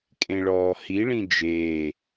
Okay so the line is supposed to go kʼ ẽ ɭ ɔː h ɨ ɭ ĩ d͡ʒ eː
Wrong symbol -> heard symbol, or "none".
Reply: ɨ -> i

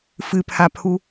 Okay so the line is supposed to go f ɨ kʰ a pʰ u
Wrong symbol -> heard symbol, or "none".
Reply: kʰ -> pʰ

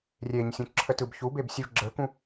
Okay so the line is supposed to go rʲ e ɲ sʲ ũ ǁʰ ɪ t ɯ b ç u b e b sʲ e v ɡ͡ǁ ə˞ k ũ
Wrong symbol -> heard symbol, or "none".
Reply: ɪ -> ə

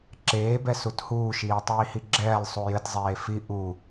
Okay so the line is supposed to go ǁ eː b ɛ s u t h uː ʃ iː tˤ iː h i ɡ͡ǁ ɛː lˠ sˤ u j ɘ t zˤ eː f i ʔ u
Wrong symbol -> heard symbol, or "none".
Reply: none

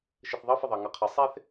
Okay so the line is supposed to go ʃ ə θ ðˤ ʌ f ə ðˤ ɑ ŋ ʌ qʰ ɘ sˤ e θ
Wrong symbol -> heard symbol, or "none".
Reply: none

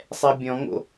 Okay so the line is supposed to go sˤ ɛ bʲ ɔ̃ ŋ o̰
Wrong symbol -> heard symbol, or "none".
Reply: none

